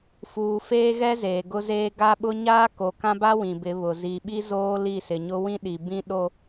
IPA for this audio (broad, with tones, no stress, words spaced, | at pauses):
fuː˨feː˦ɣɛ˦ zeː˨ɡʊ˦zeː˦ ɡa˦ɓʊ˦ ɲaː˦ko˨kã˦ba˦ wĩ˨bɪ˨˦βʊ˨ zi˨ɓi˦ zoː˦ li˦˨sɪ˨ɲʊ˦ wĩ˦ɗi˨bĩ˦ ɗo˦